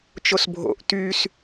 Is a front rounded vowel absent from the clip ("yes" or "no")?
no